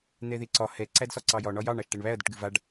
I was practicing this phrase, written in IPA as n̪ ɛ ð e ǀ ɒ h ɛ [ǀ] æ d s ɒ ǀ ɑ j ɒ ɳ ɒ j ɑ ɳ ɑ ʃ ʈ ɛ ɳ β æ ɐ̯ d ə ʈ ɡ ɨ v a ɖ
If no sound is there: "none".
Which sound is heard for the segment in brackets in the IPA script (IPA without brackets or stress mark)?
ǀ